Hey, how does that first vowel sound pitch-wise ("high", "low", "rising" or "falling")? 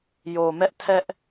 low